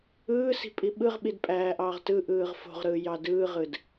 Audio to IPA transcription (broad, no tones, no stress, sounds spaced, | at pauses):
ɯː s i̤ pʼ i ɓ ɯ ʁ ɓ i d pʼ æː ʔ ɑː ʁ t ɯ ʔ ɯː ʁ f o̤ ʁ ɾ ɯː j ɑ d ɯː ʁ ɯ d